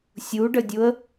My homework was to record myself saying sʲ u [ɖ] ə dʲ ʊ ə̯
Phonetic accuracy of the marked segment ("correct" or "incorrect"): correct